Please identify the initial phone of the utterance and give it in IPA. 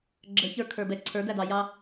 ɡ͡ǁ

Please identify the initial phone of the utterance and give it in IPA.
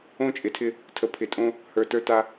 õ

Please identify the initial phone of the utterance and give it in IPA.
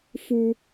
f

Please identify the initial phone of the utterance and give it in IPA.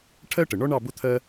ʈʰ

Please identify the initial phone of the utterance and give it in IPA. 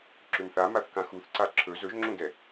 ǁ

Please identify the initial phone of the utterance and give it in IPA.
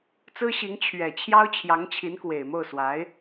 t͡s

